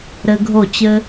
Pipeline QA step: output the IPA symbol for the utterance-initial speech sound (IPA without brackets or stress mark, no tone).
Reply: ɾ